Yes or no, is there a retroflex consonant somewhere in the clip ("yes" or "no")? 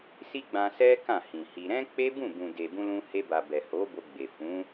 no